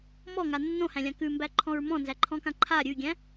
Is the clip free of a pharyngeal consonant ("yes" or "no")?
yes